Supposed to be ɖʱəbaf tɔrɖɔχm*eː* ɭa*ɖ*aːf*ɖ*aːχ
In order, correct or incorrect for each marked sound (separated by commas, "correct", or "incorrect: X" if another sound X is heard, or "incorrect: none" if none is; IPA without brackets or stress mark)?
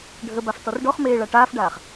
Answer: correct, incorrect: ʈ, correct